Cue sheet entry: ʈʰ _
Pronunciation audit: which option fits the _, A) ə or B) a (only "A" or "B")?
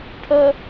A